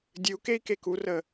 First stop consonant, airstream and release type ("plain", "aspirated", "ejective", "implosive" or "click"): plain